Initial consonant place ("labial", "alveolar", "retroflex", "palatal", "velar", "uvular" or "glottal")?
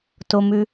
alveolar